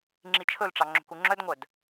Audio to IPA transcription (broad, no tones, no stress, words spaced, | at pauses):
ŋ͡ǁit͡ʃʰɵlʈ͡ʂɑ ŋ͡ǁo̤kuŋ͡ǁœdŋʷœd